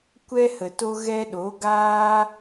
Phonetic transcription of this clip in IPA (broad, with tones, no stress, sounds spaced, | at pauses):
kʷ ɛ˧ h ə˨ t o˧ ɣ ɛ˧ ɗ o˨˦ ɡ aː˦